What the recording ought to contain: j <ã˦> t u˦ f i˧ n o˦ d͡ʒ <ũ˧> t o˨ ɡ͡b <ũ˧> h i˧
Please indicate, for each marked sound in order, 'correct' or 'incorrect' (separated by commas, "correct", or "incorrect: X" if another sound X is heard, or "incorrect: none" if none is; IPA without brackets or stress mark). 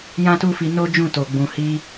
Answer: correct, incorrect: ũ˦˨, incorrect: ũ˨